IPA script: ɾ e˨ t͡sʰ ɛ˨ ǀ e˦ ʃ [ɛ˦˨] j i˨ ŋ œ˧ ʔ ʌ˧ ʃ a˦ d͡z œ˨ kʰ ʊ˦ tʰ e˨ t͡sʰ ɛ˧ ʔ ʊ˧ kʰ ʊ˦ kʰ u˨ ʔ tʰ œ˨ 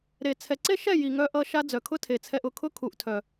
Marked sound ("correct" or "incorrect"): correct